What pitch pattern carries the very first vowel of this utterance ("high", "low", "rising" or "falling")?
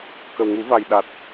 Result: low